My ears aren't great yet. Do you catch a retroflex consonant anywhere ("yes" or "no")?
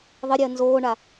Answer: yes